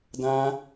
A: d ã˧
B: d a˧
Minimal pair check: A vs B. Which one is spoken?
A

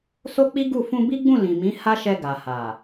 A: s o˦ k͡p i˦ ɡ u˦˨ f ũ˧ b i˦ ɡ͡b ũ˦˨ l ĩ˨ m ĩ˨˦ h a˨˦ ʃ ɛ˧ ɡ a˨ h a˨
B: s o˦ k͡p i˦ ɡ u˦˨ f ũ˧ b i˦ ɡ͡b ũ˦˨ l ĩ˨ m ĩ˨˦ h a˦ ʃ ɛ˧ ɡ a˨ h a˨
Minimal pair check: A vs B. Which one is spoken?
B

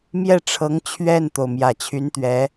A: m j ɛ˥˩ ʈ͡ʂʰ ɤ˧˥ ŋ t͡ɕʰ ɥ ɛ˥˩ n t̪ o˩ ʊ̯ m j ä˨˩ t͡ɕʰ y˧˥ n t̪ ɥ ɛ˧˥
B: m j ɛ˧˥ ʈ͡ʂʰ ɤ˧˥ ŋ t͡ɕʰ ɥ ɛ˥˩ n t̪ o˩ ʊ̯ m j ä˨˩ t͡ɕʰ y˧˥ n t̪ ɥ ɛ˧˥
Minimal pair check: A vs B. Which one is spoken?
A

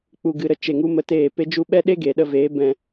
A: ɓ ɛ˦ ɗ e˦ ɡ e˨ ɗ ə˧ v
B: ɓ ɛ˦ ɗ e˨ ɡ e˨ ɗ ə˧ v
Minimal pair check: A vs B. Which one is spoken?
A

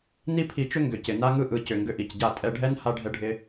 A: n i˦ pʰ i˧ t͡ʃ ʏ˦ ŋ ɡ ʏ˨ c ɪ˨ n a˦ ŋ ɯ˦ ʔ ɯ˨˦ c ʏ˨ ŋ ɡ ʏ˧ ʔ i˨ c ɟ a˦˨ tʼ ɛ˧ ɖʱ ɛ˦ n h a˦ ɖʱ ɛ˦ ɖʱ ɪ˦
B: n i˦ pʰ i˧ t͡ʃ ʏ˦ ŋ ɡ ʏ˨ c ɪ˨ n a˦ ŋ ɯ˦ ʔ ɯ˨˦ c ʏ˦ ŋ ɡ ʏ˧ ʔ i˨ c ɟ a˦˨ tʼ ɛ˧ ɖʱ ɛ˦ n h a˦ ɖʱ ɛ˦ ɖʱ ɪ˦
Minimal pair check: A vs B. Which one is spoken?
A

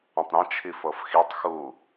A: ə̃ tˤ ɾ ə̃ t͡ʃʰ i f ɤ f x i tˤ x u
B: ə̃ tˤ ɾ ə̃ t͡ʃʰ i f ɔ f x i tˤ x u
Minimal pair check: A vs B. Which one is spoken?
A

